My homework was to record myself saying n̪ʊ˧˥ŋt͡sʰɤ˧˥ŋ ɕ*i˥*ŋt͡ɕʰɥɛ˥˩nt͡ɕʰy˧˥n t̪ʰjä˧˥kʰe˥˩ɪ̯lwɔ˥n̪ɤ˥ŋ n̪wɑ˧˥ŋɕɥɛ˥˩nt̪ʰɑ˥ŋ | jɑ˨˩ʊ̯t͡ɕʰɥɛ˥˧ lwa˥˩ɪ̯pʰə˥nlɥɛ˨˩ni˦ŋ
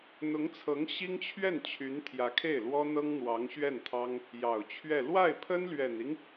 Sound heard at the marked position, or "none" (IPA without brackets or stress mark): i˥